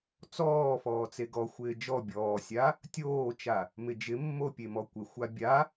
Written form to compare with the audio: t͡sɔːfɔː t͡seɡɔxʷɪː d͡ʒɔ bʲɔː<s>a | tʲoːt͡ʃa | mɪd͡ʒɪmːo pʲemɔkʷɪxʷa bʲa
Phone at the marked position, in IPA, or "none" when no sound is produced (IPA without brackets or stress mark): sʲ